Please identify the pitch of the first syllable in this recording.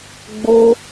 high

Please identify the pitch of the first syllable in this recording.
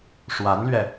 rising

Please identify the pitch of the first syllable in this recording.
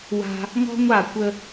high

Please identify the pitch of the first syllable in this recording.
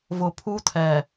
low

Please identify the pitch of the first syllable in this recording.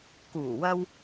low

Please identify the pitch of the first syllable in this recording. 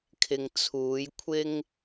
low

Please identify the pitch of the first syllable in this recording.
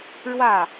falling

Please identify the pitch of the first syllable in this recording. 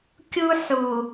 high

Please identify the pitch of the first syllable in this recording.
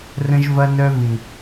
high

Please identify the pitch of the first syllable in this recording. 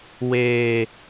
low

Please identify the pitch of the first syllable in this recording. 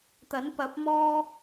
rising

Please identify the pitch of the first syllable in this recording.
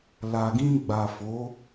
low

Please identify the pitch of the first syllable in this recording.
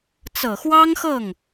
low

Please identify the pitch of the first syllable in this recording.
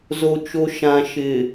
low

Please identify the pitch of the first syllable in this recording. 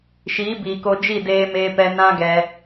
rising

